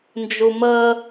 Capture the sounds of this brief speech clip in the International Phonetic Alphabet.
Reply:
n d͡ʒ u m əː

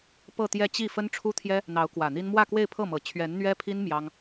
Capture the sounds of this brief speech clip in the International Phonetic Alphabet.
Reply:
p ɤ˥˧ t̪ j ɛ˥˧ t͡ɕ i˥˩ f ə˥ n ʈ͡ʂʰ u˥ t̪ʰ j ɛ˥ | n̪ ɑ˧˥ ʊ̯ k w ä˨˩ n̪ i˥ n m w ä˥˧ k w e˥˧ ɪ̯ pʰ ɤ˥˩ m ɤ˨˩ t͡ɕʰ ɥ ɛ˧˥ n n̪ ɥ ɛ˥ pʰ i˥ n m j ɑ˥ ŋ

